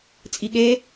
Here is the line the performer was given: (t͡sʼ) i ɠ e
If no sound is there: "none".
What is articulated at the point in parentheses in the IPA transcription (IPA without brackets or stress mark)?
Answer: t͡sʼ